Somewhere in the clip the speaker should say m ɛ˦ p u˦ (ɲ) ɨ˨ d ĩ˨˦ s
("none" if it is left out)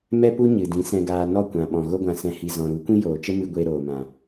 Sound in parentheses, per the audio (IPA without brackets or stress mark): ɲ